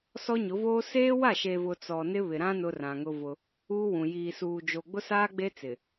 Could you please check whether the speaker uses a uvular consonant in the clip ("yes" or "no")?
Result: no